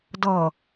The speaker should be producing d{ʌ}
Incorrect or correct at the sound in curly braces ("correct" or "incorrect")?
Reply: correct